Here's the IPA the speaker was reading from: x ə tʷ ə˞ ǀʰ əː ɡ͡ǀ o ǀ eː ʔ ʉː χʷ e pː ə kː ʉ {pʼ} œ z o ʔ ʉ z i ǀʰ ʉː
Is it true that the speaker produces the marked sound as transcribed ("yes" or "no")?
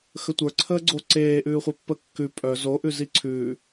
yes